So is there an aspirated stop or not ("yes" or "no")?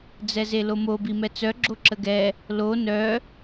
no